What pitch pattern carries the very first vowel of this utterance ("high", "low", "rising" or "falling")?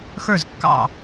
falling